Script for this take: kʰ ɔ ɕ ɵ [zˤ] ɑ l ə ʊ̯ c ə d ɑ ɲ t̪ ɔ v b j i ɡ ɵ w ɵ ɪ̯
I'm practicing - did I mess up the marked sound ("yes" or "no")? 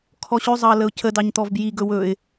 no